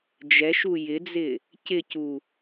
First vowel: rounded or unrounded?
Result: unrounded